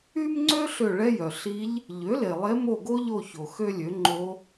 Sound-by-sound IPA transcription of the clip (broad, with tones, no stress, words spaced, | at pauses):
y˥mŋ͡ǀø˥ ɬø˦˨ɭɛ˥jœ˩ ɬi˧˥ʎ | ʎø˩˥le˩lˠe˧˥ mo˦˨ɡo˥ʎo˦˨ço˩ xø˥lʲø˩˥ ŋ͡ǃo˧˥